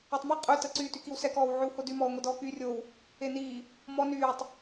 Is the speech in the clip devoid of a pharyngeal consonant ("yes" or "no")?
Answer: no